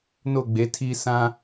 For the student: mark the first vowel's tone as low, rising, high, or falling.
falling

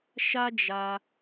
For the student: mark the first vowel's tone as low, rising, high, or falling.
high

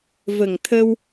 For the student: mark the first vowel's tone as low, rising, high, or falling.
low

